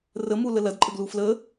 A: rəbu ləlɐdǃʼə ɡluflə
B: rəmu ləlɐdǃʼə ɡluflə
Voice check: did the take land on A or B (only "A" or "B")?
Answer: B